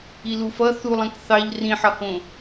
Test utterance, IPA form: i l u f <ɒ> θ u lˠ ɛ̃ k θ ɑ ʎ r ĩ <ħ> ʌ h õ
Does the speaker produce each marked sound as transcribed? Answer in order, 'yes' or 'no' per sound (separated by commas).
no, yes